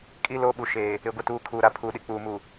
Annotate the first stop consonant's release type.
ejective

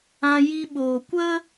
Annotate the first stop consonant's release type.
implosive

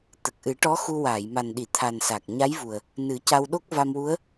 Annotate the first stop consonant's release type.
plain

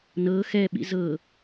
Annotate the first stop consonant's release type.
implosive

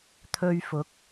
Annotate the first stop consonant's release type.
aspirated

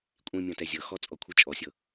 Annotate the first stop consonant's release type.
ejective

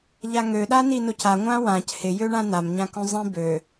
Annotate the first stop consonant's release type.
implosive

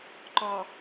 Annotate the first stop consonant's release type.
click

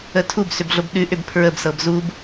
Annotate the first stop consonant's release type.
aspirated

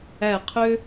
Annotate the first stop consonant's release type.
aspirated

